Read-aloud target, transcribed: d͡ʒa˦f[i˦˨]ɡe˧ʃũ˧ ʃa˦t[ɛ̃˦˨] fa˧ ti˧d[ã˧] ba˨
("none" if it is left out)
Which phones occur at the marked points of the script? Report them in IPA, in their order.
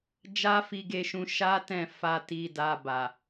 i˧, ɛ̃˦˨, a˧

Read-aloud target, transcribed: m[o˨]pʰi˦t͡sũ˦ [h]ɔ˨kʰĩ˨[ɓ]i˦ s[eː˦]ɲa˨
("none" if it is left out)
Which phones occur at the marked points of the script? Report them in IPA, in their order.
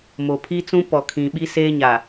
o˨, p, ɓ, eː˦

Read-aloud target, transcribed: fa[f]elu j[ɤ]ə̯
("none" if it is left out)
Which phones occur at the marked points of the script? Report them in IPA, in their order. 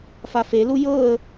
f, ɤ

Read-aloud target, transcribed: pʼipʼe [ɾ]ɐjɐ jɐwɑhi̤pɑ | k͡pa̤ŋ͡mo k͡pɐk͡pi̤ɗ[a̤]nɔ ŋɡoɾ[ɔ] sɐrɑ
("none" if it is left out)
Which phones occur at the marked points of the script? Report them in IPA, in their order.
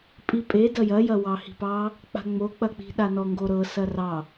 d, a, ɤ

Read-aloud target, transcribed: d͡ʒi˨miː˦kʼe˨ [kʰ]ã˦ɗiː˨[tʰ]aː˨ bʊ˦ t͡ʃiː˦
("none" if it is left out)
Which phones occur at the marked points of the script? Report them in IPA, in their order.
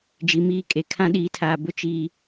kʰ, tʰ

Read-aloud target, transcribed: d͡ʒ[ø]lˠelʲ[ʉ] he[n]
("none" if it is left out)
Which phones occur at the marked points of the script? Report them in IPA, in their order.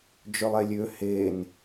ø, ø, n

